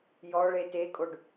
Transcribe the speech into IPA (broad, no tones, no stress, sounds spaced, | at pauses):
j ɔ ɭ e t e kʼ o ɖ